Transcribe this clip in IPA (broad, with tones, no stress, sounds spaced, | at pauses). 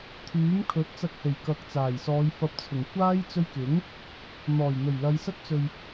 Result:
t̪ʰ yː˨˥ m kʰ ɵ˨˥ t̚ t͡s ɐ˧ k̚ h e˨˩ j k ɐ˨˥ k̚ t͡s aː˨˩ j s ɔː˨˧ j f ɐ˨ p̚ t͡sʰ ʊ˨˩ ŋ kʷ aː˥ j t͡s ɵ˧ ɥ k ɪ˨˥ ŋ | n̪ ɔː˨˩ j n̪ ɵ˨˩ ɥ l ɐ˨˧ j s ɐ˥ t̚ t͡s ɵ˨ ɥ